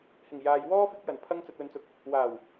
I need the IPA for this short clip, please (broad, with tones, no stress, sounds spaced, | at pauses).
h ɪ˨˩ ŋ j aː˨ j w ɔː˥ f ɪ˧ k̚ j ɐ˨˩ n pʰ ɐ˧ ŋ t͡s ɐ˨ t̚ w ɵ˨ n t͡s ʊ˨˥ k̚ | w aː˨˩ w